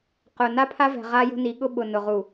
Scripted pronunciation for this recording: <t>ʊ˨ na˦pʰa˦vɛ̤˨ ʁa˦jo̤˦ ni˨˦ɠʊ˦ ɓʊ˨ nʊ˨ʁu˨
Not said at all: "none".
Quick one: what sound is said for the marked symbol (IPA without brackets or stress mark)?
q